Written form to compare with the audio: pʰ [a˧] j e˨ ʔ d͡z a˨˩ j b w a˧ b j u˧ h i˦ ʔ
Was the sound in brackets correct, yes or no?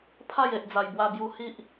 no